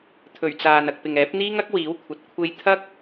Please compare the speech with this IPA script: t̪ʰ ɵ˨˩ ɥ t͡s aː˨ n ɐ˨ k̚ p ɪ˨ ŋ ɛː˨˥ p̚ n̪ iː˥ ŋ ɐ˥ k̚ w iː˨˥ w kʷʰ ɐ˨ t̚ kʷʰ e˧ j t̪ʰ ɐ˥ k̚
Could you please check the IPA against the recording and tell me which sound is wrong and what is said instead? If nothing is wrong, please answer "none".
none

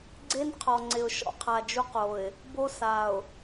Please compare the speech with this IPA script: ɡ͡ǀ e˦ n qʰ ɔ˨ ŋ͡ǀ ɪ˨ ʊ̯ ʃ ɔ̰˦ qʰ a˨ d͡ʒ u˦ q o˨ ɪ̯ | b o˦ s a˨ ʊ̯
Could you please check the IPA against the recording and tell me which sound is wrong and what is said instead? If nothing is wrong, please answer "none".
none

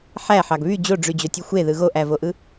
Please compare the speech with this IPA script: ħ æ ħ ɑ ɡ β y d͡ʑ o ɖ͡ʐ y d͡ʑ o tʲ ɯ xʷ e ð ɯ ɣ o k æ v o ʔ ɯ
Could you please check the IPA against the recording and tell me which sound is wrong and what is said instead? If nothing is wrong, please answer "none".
k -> ʔ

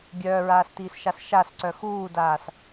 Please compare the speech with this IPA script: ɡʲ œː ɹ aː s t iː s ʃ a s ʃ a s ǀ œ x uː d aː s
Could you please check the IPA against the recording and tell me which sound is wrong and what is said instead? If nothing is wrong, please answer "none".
none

